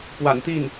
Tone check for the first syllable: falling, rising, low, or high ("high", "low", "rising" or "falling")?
low